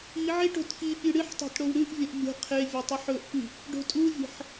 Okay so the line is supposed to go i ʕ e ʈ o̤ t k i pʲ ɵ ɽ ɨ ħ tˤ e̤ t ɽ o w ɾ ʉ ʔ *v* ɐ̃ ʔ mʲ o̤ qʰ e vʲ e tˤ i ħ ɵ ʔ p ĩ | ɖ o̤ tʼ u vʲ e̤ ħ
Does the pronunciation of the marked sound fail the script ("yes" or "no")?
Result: yes